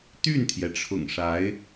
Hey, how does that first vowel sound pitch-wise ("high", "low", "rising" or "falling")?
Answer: falling